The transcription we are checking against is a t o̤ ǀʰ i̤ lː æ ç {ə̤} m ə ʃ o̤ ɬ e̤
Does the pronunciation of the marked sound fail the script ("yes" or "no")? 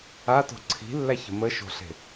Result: no